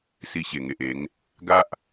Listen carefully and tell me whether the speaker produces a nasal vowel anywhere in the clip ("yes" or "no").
no